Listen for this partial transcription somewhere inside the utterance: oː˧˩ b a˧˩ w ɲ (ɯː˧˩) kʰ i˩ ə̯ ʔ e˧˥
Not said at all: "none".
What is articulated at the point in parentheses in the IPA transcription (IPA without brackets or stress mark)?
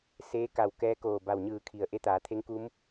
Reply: ɯː˧˩